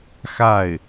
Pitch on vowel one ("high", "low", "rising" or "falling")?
falling